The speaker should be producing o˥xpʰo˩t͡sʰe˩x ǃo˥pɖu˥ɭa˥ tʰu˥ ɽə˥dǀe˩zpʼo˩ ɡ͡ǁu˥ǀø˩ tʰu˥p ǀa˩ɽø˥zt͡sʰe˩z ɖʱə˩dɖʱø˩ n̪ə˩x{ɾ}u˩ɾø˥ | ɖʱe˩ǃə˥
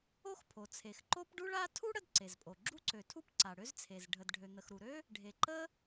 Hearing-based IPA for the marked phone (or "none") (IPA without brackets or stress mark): ɾ